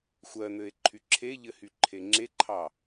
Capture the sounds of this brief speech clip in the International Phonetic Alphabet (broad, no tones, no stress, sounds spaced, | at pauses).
xʷ ɜ n̪ ɘ e̯ ǃʰ y ǁʰ e ʎ ɘ h y ǃʰ e ŋ͡ǁ e ǃʰ ɑ